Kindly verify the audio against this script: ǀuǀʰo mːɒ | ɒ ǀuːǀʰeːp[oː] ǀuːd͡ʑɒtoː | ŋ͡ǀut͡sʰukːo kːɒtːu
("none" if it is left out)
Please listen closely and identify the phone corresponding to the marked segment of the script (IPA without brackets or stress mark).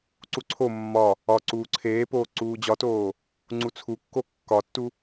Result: oː